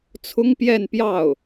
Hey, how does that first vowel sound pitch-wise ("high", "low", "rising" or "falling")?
high